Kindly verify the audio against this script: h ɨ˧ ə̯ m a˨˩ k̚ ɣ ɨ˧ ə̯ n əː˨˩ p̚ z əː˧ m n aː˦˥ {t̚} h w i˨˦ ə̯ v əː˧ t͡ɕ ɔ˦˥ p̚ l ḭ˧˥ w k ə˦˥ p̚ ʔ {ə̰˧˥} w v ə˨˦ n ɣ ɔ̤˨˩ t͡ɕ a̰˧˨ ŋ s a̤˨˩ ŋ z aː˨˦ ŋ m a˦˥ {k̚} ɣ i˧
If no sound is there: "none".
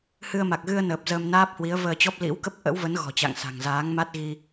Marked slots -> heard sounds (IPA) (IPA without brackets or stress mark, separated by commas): p̚, ə̰˧˥, t̚